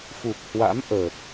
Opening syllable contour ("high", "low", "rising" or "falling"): low